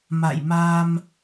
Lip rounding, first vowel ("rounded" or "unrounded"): unrounded